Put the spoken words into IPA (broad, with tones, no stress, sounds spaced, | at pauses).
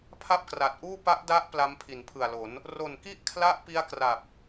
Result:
pʰ a˥˩ p̚ k r a˨˩ t̚ ʔ uː˥˩ p a˦˥ ʔ d a˦˥ ʔ p l a˦˥ m pʰ i˩˦ n pʰ ɯ˨˩ a̯ l o˩˦ n | r o˨˩ n k i˥˩ ʔ kʰ l a˦˥ ʔ p i˦˥ a̯ k r a˨˩ p̚